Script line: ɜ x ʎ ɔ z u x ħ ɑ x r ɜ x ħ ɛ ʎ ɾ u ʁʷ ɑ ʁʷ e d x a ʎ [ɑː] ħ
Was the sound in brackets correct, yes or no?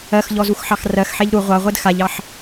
no